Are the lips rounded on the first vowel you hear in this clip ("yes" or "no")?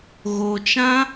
yes